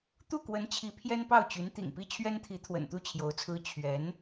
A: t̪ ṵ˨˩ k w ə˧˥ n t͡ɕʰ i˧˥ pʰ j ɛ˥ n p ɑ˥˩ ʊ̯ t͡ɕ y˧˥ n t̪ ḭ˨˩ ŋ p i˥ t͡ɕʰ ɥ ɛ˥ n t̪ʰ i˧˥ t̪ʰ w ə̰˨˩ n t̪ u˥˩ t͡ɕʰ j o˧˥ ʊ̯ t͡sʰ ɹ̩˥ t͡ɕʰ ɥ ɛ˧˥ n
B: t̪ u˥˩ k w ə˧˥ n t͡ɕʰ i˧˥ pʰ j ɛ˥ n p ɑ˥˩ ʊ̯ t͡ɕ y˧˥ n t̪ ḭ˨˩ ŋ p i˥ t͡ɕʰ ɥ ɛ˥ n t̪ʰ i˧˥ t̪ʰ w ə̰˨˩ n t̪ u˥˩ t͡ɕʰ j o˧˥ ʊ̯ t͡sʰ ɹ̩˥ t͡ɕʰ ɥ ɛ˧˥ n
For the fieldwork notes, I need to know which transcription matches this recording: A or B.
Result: B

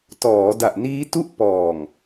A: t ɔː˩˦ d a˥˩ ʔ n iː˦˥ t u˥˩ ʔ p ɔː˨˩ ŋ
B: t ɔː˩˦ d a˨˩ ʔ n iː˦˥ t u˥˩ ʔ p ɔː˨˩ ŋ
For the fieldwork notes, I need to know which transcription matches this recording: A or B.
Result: B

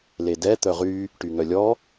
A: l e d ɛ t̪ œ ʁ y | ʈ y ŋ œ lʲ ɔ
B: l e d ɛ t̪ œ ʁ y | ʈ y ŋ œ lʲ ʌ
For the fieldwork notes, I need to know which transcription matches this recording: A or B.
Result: A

